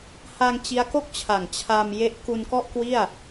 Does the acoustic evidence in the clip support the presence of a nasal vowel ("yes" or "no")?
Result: no